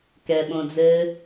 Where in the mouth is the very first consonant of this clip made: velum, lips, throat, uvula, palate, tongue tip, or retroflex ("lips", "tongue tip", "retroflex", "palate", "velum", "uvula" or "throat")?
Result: velum